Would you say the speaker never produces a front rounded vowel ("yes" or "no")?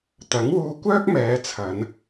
no